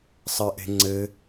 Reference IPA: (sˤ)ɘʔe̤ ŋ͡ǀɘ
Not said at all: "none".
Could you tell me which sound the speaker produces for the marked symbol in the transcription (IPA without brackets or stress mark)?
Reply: sˤ